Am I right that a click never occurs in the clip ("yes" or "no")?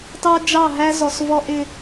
yes